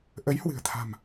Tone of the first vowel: rising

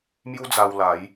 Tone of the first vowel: high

